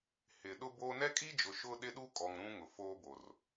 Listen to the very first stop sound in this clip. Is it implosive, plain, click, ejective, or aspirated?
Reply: implosive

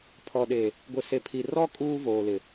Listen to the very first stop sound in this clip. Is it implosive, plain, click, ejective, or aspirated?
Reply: aspirated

